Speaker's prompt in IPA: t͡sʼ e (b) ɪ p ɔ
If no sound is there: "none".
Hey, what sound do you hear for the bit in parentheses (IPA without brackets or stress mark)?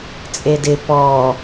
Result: d